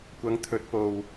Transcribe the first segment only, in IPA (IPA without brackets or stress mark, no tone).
kʷ